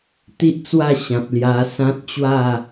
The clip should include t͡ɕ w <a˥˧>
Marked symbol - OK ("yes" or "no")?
yes